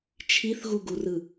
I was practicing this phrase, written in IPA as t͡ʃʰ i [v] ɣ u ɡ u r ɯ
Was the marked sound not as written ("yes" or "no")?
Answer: yes